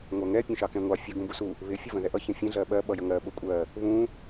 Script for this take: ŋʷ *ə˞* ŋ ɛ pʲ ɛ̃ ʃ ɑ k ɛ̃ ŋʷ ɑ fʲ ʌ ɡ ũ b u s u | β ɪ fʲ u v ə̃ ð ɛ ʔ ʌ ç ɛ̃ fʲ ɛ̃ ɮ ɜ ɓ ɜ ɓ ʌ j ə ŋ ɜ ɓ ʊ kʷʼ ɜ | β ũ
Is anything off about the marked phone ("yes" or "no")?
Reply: yes